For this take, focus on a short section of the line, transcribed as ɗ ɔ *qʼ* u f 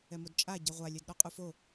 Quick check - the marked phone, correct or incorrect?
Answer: correct